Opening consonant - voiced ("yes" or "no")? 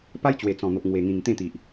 no